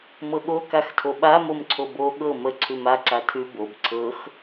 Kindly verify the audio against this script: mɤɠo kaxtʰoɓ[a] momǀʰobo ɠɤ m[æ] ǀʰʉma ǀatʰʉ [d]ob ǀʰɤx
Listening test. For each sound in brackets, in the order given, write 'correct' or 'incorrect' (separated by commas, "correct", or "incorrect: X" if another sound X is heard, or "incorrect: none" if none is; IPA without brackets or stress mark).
correct, incorrect: ə, incorrect: b